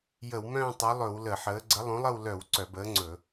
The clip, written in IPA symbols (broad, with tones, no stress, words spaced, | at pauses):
jə˧˩˧wmœ̃ː˥˧tˤɵ˨˥lˠɵ˧˩˧w lə˧˩˧ħəː˨˥ ɡ͡ǀə˨˥ lˠõ˨˥lˠə˥˧w lœ˧˩˧w ǀœ˧˩˧bəː˨˥ŋ͡ǀɵ˧˩˧